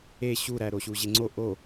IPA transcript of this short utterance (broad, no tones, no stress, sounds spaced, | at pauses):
e ɕ u ɾ æ ɾ o ɕ u ʑ e ŋ͡ǀ o ʔ o